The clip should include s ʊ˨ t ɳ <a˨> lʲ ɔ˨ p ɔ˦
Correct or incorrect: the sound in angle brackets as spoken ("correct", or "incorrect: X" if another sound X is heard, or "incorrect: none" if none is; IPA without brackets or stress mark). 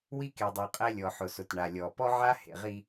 correct